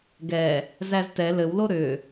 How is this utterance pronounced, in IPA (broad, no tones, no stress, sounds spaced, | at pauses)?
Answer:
ɡ ɛ | z æ z t ɛ l ɘ w l o ɾ ʏ